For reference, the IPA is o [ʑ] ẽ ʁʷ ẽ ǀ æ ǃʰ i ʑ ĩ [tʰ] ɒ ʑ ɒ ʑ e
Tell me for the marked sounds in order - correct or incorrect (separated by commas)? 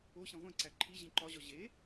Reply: incorrect, incorrect